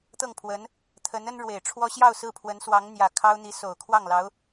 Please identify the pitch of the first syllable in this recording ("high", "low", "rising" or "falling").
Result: falling